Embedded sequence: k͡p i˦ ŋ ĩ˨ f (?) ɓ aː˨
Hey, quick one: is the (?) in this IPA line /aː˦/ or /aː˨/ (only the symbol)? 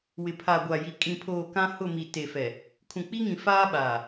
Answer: aː˦